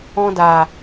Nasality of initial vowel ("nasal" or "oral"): nasal